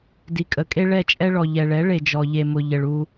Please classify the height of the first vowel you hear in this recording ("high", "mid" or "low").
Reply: high